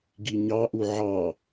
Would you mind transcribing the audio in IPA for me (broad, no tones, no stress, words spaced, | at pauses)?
ɡiɲɑʔu ʕɑ